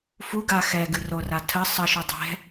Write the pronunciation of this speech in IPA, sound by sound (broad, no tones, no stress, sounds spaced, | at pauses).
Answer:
f u ɡ a x ɛ ɡ ɨ r o r a tʰ ə sˤ ə ʃ u dˤ ɛ̤